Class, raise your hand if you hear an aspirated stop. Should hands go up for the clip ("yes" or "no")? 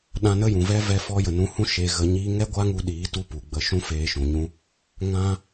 no